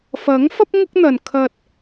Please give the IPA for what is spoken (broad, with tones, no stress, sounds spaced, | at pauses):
f ɐ˨˥ ŋ f ɐ˥ p̚ ŋ ʊ˥ k̚ n̪ ɐ˨ n kʰ ɐ˧ t̚